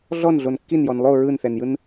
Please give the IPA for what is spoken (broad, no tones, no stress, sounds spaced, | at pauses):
ɮ ɔ n ɮ o n kː i n j ɔ n lˠ o ɹ ɯ n θ ɛ n j ɯ n